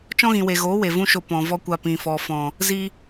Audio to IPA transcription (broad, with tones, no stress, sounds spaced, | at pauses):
t͡ʃ ɔ̃˦ ɣ ĩ˨ w e˨ ɣ oː˨˦ w e˨ v ũ˦ ʃ o˧ p ɔ̃˨ v ɔ˦ kʷ a˧ p ĩ˨ f ɔ˨ f ɔ̃˨ | z i˧